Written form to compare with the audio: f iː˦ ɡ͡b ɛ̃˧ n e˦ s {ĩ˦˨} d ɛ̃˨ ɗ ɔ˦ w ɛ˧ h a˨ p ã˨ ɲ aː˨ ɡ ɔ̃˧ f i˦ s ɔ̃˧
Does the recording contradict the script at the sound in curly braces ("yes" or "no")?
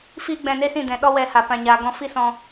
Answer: no